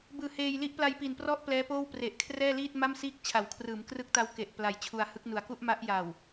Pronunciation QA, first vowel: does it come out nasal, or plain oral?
oral